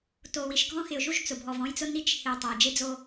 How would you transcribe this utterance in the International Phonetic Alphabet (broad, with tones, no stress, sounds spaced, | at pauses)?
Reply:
t o˨ w i˨ ʃ ɡʱ ɔ̃˦ x ɪ˨ ʊ̯ ʒ u˦ ʒ t͡s ʊ˨ bʱ ɔ˨ v ɔ̃˦ j t͡s ʊ˦ n i˦ t͡ʃ h ɪ˨ ʊ̯ tˤ a˨ ə̯ d͡ʒ e˦ d͡z o˦